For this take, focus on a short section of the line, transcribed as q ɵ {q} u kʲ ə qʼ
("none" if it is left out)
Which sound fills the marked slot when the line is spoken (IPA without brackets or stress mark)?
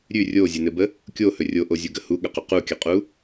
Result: q